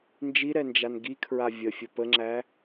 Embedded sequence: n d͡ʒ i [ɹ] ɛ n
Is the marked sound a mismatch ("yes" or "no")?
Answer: yes